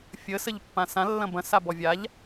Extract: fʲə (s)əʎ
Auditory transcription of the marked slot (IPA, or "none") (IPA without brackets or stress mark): s